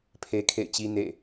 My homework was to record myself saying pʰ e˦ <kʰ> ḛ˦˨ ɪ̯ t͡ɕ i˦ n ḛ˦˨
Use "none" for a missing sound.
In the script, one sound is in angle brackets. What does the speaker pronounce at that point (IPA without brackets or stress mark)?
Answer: kʰ